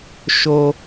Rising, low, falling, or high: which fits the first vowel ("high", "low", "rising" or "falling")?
low